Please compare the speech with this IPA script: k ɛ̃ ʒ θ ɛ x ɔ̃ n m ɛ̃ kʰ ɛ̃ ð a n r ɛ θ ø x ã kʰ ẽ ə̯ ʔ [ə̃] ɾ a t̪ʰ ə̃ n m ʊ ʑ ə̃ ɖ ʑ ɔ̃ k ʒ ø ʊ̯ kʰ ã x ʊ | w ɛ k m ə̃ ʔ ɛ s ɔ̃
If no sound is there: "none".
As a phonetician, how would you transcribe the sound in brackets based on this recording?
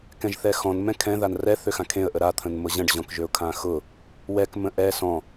ə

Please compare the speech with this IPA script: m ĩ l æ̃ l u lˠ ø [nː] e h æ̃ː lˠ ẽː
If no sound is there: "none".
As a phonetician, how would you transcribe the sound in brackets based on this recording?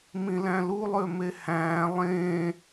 m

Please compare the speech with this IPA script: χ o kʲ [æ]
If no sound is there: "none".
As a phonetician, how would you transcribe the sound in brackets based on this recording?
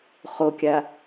a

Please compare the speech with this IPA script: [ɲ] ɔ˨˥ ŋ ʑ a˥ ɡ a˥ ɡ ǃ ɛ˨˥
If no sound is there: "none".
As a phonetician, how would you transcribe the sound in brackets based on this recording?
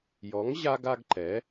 j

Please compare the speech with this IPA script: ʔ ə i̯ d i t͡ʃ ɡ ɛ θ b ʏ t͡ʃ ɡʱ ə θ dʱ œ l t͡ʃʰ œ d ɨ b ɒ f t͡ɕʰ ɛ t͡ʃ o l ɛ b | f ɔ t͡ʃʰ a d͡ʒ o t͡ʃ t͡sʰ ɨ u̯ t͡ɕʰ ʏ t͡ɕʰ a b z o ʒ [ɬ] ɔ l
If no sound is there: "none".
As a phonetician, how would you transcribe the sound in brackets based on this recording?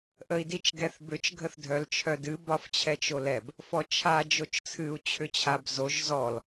z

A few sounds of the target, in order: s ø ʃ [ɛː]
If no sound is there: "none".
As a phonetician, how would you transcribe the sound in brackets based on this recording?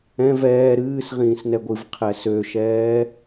ɛː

